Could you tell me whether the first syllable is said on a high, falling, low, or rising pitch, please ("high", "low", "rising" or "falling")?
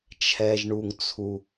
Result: low